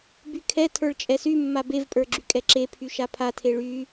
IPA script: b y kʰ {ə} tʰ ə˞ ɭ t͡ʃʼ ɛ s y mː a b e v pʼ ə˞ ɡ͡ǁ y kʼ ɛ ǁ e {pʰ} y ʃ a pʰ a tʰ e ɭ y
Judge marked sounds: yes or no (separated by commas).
no, yes